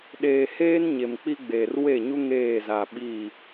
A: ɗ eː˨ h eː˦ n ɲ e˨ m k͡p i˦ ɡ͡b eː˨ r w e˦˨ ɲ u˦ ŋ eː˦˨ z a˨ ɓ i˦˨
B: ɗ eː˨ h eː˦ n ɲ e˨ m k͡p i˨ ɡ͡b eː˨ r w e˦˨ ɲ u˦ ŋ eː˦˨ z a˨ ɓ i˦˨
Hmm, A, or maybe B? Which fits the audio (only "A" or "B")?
A